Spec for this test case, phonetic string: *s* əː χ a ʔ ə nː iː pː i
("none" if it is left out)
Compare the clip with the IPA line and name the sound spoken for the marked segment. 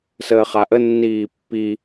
s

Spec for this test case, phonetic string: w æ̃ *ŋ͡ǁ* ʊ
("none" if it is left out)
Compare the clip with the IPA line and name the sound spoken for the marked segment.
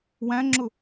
ŋ͡ǁ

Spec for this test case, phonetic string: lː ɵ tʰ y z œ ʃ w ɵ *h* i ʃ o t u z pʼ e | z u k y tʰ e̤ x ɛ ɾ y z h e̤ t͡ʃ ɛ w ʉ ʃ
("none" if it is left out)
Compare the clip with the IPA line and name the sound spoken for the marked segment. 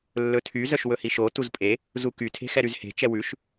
h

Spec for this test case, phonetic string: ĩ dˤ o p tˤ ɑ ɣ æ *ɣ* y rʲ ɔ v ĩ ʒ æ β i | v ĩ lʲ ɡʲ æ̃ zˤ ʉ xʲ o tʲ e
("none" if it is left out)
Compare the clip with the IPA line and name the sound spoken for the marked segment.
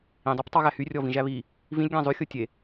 h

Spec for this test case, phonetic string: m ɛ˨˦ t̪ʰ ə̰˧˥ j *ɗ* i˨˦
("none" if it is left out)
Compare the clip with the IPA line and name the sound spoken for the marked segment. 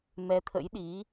ɗ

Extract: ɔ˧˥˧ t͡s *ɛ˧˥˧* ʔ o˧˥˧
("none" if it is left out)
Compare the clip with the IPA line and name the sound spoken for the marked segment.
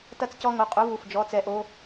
ɛ˧˥˧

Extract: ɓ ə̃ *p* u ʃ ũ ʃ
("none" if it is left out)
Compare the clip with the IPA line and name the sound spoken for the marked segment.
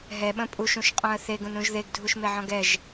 pʼ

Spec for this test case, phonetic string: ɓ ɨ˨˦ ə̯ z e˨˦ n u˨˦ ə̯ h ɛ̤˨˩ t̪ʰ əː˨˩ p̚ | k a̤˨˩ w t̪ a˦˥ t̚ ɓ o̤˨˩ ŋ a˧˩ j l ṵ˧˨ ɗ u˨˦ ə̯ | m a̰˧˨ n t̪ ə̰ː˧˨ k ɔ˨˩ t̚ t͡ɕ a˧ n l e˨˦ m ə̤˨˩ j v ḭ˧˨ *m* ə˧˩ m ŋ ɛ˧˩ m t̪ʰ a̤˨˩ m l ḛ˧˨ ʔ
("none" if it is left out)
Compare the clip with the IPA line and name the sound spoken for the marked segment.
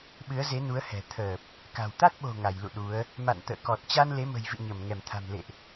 ɲ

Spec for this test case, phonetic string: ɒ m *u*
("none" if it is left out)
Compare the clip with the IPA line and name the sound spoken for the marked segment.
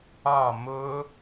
ʊ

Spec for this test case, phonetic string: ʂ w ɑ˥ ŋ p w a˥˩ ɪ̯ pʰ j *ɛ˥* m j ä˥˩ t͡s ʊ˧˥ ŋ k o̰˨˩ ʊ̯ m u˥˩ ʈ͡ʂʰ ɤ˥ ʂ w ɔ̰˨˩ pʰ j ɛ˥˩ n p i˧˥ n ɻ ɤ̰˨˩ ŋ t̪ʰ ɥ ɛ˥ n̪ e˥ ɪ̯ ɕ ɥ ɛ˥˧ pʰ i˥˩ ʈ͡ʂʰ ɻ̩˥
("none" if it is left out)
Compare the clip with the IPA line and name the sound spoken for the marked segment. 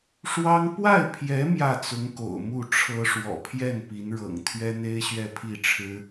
ɛ˧˥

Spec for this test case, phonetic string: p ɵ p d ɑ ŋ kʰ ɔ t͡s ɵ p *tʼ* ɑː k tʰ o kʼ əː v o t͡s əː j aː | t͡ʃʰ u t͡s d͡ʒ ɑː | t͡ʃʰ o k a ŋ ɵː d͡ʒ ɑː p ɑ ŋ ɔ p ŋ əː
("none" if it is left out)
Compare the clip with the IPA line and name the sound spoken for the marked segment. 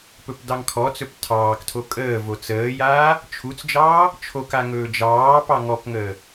tʰ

